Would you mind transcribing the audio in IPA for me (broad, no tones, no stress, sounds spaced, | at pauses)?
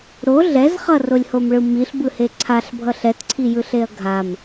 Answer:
ɾ o ɮ ɛ z χ ʌ r o lʲ h o m ɭ ɯ m i ɬ b ɯ h e ǀʰ a ɬ bʱ ʌ ɬ ɛ t ǀʰ i j ɯ ɬ e ɐ̯ ɡʱ a m